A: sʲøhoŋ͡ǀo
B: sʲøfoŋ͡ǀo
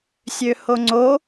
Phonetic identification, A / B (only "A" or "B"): A